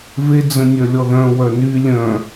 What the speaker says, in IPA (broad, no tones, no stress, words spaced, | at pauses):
ve d͡zə̃nʲœlʲɔðœ̃ wœny lʲœ̃